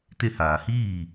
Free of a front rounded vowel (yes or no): yes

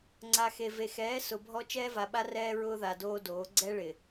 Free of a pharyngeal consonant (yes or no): yes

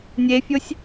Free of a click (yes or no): yes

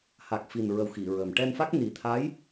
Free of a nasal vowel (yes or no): yes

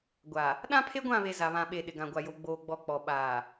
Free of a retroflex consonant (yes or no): yes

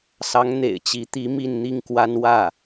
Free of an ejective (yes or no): yes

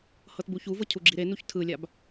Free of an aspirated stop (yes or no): no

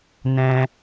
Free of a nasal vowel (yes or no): no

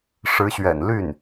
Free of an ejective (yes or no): yes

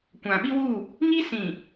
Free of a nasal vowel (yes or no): no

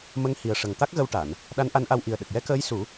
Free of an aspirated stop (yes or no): yes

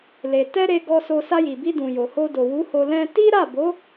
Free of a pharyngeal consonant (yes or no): yes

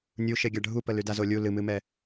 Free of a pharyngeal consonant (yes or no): yes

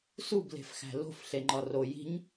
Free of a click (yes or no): no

